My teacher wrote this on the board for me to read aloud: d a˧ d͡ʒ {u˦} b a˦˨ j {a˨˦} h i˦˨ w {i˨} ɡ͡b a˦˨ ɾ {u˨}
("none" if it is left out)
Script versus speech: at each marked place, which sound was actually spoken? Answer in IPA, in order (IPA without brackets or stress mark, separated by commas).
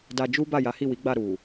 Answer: u˦, a˨˦, i˨˦, u˨